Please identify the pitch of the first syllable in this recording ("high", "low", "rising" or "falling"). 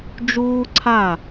high